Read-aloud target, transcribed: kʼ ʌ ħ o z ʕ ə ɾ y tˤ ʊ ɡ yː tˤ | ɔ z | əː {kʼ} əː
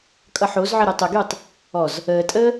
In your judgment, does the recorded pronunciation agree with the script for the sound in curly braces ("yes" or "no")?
no